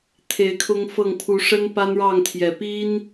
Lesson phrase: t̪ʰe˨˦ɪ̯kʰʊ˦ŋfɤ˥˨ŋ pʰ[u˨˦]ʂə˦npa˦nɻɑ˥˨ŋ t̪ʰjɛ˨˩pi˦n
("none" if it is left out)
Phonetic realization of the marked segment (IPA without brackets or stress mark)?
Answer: u˨˦